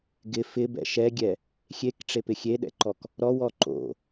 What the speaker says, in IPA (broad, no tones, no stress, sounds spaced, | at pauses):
ɡ ɪ f ɪ b ɛ̰ ʃ ɛ ɡʲ ɛ | xʲ e k ʈ͡ʂ e p ɪ xʲ e ɗ ɛ̰ ǃ ɔ k | ɾ ɔ w ɔ ǃ o̰